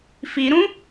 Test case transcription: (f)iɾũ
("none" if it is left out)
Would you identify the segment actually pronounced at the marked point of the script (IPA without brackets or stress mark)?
f